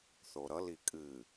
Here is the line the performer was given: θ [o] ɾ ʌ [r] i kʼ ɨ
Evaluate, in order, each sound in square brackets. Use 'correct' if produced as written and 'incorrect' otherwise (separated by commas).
correct, incorrect